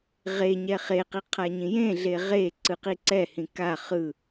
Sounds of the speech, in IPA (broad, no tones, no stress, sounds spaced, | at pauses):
ʁ e ɲ ɛ χ e q i qʰ a ɲ ĩ j ẽ ɮ e ʁ e ǀ ɯ q i ǀ ɛ h ĩ k a χ ɯ